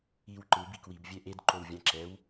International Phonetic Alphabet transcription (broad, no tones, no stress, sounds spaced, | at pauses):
i w ǃ ɯ b i k w i b vʲ ɛ ʔ e d ǃ o w vʲ ã ǁ ɛ w